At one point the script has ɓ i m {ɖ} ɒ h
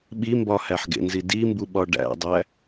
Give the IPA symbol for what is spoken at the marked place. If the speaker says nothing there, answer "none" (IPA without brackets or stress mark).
b